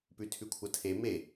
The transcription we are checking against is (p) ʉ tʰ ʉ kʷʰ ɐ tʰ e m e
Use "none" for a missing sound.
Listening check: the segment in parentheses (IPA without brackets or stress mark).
p